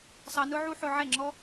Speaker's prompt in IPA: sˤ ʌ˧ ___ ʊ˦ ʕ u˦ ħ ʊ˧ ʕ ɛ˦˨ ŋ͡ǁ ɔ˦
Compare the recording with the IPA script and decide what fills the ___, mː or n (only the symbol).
n